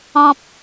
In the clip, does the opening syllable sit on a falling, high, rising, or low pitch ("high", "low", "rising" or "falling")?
low